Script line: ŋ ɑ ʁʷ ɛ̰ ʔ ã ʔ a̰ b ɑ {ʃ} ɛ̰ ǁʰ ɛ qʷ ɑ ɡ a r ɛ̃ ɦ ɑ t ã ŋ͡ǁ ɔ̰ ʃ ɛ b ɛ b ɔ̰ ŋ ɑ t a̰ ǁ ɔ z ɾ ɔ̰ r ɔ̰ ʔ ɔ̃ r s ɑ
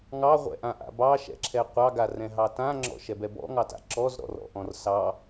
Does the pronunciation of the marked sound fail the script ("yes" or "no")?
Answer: no